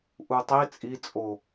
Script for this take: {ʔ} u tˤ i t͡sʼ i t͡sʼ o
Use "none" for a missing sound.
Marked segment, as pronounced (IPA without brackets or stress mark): ʔ